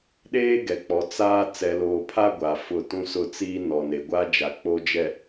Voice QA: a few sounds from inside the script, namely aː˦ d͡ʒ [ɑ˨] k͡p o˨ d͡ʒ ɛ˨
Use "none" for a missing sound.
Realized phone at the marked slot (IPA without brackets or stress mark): a˨